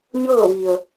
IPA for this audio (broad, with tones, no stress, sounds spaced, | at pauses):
ɲ ɤː˥˨ ʋ i˩ ə̯